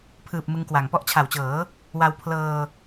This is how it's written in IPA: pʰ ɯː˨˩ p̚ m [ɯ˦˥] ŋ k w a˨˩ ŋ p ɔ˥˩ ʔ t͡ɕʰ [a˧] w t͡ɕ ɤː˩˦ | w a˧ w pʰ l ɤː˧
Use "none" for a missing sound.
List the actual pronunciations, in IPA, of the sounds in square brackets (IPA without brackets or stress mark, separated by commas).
ɯ˦˥, a˨˩